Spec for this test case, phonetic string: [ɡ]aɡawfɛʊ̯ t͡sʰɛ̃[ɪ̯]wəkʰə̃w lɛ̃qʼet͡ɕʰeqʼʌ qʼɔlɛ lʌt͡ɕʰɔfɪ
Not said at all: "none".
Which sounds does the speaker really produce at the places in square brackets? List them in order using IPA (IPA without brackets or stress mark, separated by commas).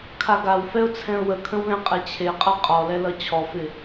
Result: kʰ, ʊ̯